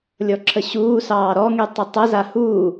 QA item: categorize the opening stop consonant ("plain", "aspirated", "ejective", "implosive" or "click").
click